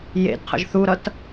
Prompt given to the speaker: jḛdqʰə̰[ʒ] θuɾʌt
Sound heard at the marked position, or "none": ʒ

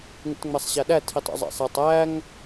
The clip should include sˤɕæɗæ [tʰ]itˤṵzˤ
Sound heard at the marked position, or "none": tʰ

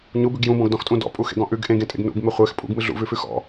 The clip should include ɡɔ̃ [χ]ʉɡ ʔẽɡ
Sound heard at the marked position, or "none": ʔ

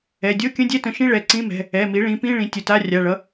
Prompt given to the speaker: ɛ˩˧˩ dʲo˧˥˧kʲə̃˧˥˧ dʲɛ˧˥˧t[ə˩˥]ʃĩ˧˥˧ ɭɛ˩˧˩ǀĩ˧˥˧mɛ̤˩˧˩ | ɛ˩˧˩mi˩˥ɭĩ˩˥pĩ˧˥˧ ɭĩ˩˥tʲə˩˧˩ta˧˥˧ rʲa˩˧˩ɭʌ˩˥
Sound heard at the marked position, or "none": ə̃˩˥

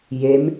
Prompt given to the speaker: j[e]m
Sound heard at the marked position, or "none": e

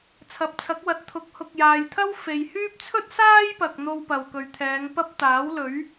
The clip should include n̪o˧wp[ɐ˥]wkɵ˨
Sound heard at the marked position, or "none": ɐ˨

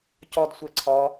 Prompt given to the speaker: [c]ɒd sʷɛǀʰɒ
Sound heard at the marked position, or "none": c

